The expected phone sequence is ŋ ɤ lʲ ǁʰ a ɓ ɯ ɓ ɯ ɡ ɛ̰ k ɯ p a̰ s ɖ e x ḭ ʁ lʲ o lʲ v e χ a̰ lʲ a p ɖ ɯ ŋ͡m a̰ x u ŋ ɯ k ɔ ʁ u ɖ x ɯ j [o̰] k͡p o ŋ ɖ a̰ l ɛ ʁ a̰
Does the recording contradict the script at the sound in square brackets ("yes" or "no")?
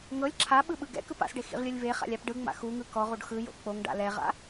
no